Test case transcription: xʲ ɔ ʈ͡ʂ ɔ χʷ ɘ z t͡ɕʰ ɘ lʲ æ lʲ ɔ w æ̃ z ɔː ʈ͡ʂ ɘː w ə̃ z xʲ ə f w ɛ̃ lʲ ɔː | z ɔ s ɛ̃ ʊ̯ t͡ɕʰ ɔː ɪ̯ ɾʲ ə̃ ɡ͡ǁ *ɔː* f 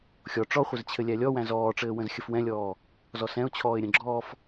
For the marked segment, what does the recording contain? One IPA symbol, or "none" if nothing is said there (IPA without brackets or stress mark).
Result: ɔː